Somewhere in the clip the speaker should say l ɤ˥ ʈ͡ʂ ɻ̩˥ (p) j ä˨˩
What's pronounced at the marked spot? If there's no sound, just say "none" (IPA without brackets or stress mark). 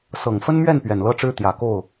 t̪